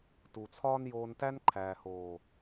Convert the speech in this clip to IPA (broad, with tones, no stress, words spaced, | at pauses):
tu˨t͡sʰɒː˦njoː˧ntæ˦n ǃʰæː˨hoː˨